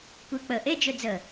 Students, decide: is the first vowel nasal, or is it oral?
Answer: oral